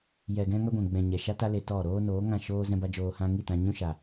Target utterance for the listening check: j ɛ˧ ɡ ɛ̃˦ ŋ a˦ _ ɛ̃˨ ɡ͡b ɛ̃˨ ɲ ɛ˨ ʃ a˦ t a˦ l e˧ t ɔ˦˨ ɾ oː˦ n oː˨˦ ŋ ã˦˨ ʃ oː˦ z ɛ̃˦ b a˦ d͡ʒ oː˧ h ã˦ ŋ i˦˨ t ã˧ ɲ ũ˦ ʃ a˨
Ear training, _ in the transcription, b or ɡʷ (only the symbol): ɡʷ